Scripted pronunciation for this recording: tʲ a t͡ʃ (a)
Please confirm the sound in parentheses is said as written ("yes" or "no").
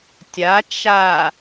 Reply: yes